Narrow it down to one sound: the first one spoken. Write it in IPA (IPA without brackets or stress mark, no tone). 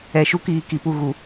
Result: ɛ